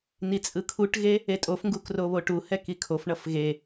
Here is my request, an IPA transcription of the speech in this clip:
nit͡sʼɯkʰuʈɣe | etʼofŋɡuk roβoʈuhɛk ikʰofɳʌf ɣe

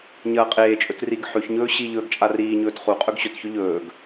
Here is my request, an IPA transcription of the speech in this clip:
ɲɐːqʼeːt͡ʃʼɵt riɡ ħʉçɲɵː ɕi ʎɵːɡt͡ʃʼariːɲɵːt χuqʼɵɡ ɕɵtçɵ ʎɵːɡ

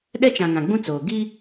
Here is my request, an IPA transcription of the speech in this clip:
ɗɛ˦t͡ʃã˨ ŋã˨ ɡ͡bũ˦t͡soː˨ ɡi˦

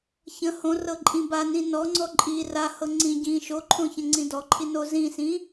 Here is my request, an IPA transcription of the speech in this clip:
çə̃ hõ rɤǃʼĩba nĩnɔŋ͡ǀɔ ǃʼi ra hɤŋ͡ǀĩ ɟĩ ʃoǃʰõçə̃ ŋ͡ǀĩdɔǃʰi nozĩsĩ

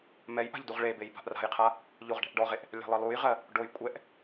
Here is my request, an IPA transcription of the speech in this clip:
mɛjʔa̤ʎ duʁɭebej ba̤ʔra̤jqʰa | ʎoʁɖɛ̤ʔɖɔʁeʔ | lʲa̤lˠɜlˠujʁɜ | ɖoj kʷʼɛʔ

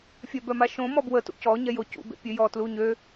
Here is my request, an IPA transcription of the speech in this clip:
fʲœbœmaʃõ mɔbwə tṵcɔ ɲɛjocṵ bḛpʲøjɔ tluɲø

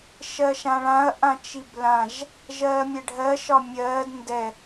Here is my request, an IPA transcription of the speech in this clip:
ʃɜʃãɭãɐ̯ ʔãt͡ʃiblãʒ | ʒɜːmʲɛɖʱɜ ʃɒmʲɜːd ndɛ

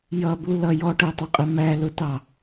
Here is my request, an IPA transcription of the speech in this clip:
jʌbu lʌ jɔʈɜtˤʊqʼɪ mælʊtɑ

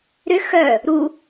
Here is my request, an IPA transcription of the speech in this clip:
ɾʏ xœ | ɾu

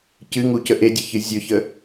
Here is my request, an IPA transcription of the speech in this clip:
cɨŋucə ʔedʲəçɨ zʲʊçə

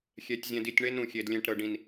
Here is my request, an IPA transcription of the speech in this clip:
xʲɛ˨˦tʲ zʲɛ̃˨di˨tʲɳe˦n ɾũ˨xʲe˨d lʲɛ̃˨ʈ ɾɤ˨ɖĩ˨n

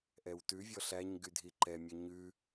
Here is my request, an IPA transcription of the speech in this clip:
ʔɛwtʉvʲɔ ɬæɲ ɡydʱiǃɛmʲœ ɲʉ

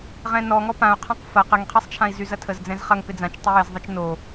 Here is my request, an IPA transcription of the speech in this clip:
ʁɛ̃nɔ ŋɔpãu̯ qʰãqfɐ qəŋqʰesˤt͡ʃʰãi̯ zyzɐtʰəz d͡zɛ̃zχɐŋ pɪd͡zãt͡ʃ tˤɪjɪzðˤɐt͡ʃ no

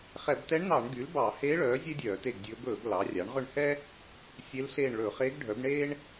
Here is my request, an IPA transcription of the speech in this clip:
χɛ˧˩˧btɛ˧˥ɳnɑ˧˩˧ɳɡy˩˥l bɑ˧˩˧heː˧˥ ɭœː˩˥ zʲe˥dʲœː˧˩˧te˦˨ɡdʲɵː˧˥b ɵː˧˩˧ɡ lɑ˩˥ rʲɑ˩˥ɳʁɵ˦˨ɳhɛ˥ | sʲe˧˥lɬeː˦˨ɳ ɭɵ˧˩˧χeː˧˥ɡɖʱœ˩˥b ɳeː˥ɳ

